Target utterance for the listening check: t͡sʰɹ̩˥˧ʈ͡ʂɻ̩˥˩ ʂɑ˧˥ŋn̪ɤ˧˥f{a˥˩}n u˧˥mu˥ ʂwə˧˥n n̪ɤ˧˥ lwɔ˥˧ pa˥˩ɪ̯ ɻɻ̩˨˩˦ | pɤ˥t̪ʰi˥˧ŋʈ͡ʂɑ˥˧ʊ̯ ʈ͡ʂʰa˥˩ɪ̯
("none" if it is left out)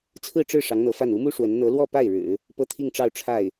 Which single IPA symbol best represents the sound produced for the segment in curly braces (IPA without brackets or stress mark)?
a˥˩